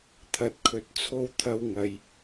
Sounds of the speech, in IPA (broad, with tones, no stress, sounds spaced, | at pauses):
t̪ʰ ɐ˨ t̚ kʰ ɵ˨˥ t̚ t͡sʰ o˧ w t̪ʰ ɐ˧ w ŋ ɐ˨ j